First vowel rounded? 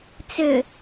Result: yes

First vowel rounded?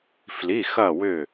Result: no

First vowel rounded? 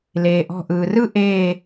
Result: no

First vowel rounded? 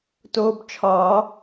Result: yes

